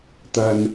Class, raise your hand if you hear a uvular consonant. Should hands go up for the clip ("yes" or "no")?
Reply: no